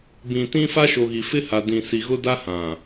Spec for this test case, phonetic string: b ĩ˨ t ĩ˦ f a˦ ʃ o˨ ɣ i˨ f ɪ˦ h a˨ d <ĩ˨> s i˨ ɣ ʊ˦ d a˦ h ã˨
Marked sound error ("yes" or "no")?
no